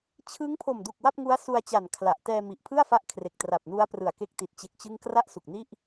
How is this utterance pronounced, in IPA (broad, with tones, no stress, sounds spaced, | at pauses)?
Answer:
t͡ɕʰ ɯ˦˥ ŋ pʰ o˨˩ m d u˨˩ k̚ w a˥˩ p̚ ŋ u˦˥ a̯ s u˧ a̯ t͡ɕ a˨˩ n kʰ l a˨˩ ʔ t ɛː˧ m i˨˩ ʔ pʰ ɯ˥˩ a̯ f a˦˥ ʔ kʰ r e˨˩ k̚ t r a˨˩ p̚ n u˦˥ a̯ p r ɯ˨˩ a̯ k e˦˥ k̚ t i˨˩ t̚ t͡ɕ e˦˥ k̚ t͡ɕ ɯ˥˩ ŋ k r a˥˩ ʔ s u˨˩ k̚ n i˥˩ ʔ